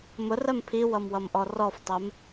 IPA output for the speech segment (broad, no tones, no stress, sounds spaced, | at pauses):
m ʊ r ɜ m pʰ i w ʌ m w ʌ m ʔ ɔ r ɔ f tˤ ɜ m